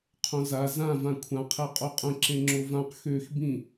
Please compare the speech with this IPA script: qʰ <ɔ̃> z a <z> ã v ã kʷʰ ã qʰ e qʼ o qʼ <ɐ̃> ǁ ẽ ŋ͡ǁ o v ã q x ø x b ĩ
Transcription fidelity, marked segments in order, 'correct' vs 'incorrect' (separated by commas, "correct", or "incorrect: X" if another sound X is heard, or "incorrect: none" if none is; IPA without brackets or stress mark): incorrect: õ, correct, incorrect: ə̃